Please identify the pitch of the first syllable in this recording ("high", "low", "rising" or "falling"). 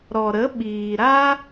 low